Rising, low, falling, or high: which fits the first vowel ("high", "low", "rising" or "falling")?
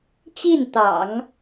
falling